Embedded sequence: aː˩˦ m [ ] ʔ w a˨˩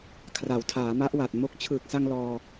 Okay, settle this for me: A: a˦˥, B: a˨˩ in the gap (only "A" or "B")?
A